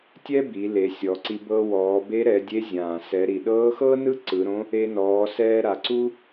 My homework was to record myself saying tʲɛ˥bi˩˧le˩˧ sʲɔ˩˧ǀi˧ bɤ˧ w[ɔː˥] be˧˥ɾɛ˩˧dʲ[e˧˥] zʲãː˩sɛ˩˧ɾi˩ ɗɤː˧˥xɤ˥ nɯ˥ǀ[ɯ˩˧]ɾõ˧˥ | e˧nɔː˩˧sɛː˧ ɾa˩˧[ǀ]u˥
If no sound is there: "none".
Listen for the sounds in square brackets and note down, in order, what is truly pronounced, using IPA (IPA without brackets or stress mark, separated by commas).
ɔː˩˧, e˧˥, ɯ˩˧, ǀ